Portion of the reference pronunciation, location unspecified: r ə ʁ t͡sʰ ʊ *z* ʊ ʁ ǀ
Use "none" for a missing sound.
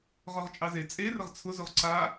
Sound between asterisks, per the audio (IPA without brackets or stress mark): z